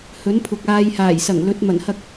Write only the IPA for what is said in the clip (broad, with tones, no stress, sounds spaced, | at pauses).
h ɵ˨˥ n pʰ ʊ˨ k̚ aː˧ j h aː˨˩ j s ɐ˨˩ ŋ l ɵ˨˥ t̚ m ɐ˨˩ n h ɐ˧ k̚